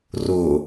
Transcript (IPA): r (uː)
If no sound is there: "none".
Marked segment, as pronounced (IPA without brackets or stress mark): ʊː